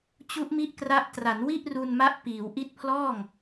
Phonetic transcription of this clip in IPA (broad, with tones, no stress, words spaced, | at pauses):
t͡ɕu˦˥ʔmi˦˥ʔkra˦˥ʔ tra˩˦nwi˥˩ʔru˧nma˦˥ʔ piː˩˦wʔi˦˥t̚pʰlɔː˥˩ŋ